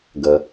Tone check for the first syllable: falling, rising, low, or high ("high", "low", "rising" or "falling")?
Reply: low